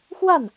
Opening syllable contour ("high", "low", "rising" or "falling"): falling